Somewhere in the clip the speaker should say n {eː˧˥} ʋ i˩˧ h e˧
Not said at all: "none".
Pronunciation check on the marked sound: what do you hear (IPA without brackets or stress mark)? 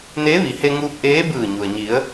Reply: eː˧˥